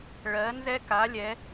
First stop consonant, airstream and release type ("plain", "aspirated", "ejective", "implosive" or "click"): plain